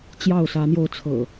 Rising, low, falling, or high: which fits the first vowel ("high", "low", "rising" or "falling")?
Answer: falling